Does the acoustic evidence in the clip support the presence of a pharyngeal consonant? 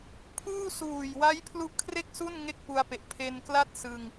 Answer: no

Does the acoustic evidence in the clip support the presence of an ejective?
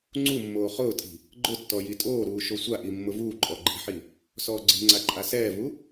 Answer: yes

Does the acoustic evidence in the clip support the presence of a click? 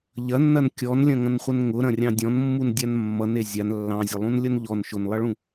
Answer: no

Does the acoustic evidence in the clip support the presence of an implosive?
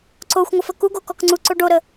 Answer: no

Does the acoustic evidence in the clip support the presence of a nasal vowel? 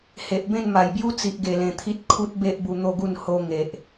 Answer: yes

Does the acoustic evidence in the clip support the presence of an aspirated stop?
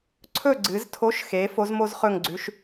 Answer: yes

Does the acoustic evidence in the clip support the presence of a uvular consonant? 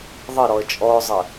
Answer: no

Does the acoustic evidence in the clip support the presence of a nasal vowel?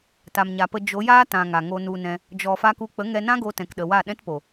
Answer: yes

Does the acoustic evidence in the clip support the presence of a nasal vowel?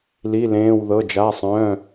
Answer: yes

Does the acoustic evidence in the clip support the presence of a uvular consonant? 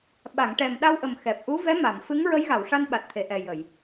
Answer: no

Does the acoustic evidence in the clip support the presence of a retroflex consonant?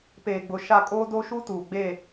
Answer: no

